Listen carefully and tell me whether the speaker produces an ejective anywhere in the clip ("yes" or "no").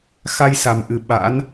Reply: no